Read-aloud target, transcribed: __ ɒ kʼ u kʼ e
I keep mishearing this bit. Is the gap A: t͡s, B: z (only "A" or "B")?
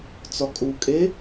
A